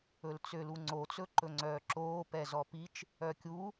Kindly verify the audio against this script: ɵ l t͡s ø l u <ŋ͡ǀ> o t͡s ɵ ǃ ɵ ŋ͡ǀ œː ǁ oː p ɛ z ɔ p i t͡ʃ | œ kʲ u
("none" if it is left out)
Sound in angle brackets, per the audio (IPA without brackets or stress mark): ŋ͡ǀ